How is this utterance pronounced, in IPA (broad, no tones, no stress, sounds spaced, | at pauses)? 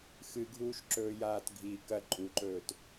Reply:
x ɨ ɡʱ uː ʃ ǁ ɵː j aː t ɡʱ i k ɐ ǃʼ u ǃ ɵː t